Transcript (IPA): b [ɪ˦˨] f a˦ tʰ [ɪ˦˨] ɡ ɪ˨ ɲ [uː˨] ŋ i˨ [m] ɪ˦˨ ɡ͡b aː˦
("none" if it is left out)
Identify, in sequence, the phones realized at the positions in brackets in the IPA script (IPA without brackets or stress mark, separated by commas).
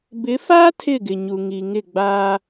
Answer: ɪ˨˦, ɪ˦˨, u˨, ŋ